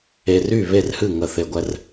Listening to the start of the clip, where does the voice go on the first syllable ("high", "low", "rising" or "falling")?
low